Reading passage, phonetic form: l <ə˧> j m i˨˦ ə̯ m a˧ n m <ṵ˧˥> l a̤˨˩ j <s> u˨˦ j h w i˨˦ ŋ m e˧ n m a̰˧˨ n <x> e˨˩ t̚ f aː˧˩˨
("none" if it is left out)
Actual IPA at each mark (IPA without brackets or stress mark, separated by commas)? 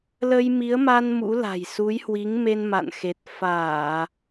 ə˧, ṵ˧˥, s, x